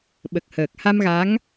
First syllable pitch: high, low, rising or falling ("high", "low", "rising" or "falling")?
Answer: low